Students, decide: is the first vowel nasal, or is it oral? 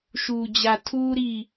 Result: oral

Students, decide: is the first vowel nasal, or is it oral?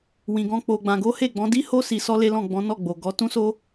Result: nasal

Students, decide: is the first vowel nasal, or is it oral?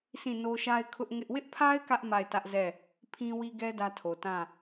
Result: nasal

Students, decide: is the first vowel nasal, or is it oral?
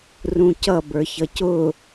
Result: nasal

